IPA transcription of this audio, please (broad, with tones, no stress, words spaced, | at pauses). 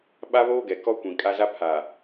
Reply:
ɓa˦βoː˦ɡɛ˨ kɔ˦kʷĩ˨kʼa˦za˦ pʰa˨